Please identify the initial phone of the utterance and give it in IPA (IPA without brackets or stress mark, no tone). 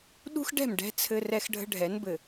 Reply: ɗ